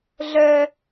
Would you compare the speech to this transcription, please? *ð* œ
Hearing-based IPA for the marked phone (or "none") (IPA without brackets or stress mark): ɮ